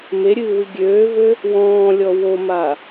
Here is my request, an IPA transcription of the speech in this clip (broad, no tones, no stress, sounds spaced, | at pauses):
m e ɾʲ ɨː w ɨ ɡʲ øː v ø | w ɔ̃ː lʲ ɔ w o m a